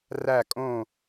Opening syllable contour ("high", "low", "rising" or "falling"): falling